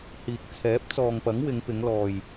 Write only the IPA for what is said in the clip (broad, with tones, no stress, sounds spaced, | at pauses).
h iː˨ k̚ t͡sʰ ɛː˨˥ p̚ t͡s ɔː˨ ŋ p ɐ˨˥ ŋ w ɪ˨˧ ŋ p ɪ˨˧ ŋ l ɔː˨ j